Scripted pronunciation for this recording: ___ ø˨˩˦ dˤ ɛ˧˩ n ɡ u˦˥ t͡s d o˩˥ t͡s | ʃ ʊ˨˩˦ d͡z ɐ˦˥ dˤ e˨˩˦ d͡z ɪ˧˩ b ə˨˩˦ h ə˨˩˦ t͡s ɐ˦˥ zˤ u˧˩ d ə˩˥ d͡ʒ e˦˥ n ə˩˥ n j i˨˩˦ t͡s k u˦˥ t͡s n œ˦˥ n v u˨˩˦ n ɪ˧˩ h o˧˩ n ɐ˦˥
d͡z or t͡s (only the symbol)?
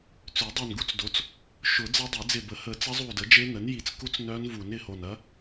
t͡s